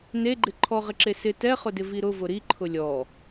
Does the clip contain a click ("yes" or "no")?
yes